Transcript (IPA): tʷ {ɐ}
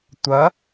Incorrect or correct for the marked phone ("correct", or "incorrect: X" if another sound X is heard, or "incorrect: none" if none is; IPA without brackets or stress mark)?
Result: correct